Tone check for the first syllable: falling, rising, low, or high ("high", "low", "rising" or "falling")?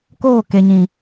falling